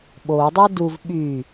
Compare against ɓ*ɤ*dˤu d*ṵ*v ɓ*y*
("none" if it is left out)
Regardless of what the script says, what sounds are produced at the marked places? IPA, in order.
o, u, y

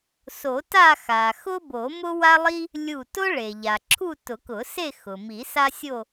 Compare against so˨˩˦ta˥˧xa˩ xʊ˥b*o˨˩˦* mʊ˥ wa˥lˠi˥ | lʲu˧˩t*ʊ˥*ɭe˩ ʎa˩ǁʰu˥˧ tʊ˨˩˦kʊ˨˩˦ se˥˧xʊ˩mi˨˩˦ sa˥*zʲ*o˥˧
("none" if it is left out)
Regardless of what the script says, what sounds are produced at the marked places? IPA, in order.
o˨˩˦, ʊ˥, sʲ

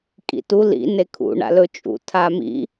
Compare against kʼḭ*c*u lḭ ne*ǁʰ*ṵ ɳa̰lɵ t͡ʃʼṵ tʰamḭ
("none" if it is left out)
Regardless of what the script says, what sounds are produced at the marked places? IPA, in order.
t, kʰ

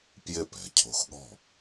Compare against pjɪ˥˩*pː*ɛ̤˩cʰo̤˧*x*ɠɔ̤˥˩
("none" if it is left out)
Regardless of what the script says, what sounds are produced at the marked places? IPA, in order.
p, x

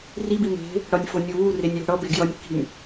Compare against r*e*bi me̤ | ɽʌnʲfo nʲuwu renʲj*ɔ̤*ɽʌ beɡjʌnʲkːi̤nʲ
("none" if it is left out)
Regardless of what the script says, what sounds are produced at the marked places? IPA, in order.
i, o̤

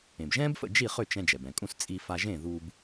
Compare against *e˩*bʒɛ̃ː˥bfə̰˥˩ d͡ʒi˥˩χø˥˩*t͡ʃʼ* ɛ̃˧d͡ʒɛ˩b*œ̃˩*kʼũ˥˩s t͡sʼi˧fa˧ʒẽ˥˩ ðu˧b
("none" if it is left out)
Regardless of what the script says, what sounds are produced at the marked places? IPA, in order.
ẽ˩, t͡ʃ, ɛ̃˩

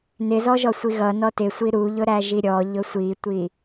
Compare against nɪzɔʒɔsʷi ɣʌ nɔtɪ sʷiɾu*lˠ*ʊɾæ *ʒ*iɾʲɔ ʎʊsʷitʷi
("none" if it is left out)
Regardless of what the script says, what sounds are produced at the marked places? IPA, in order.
ʎ, ʒ

